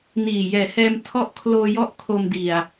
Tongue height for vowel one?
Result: high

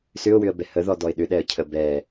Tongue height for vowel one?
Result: high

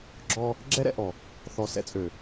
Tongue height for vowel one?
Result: mid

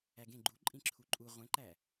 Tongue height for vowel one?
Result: low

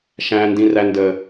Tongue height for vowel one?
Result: low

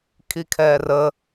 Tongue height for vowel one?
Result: high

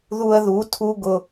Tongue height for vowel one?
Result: high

